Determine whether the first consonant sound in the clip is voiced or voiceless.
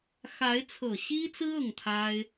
voiceless